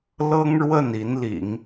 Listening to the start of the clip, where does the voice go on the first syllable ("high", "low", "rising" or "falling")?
high